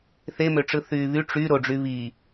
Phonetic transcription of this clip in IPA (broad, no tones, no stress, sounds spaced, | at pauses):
θ e m ø ʈ͡ʂ ɯ θ yː β y ʈ͡ʂ y ɾ o ɖ͡ʐ y β i